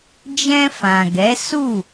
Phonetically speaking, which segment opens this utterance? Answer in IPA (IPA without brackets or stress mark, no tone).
d͡ʒ